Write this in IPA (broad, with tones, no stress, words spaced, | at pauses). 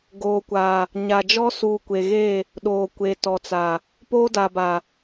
ɡoː˨kʷa˨ | ɲa˨d͡ʒɔ˦ suː˨kʷe˨ɣe˦˨ | ɗoː˨kʷeː˨tɔ˨t͡sa˨ | poː˦da˨ba˨